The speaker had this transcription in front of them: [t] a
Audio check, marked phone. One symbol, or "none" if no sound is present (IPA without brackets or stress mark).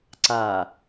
ǀ